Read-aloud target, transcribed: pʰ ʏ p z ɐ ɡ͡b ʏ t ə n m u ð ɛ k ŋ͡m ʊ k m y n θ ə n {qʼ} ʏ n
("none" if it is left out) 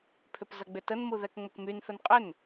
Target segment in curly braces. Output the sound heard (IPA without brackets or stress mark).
qʼ